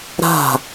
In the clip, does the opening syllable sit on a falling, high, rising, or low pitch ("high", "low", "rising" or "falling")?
falling